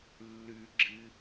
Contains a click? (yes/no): yes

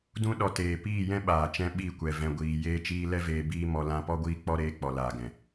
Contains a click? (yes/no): no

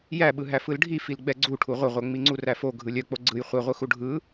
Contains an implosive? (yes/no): yes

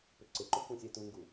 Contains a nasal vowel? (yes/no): yes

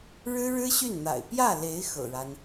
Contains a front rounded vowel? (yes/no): yes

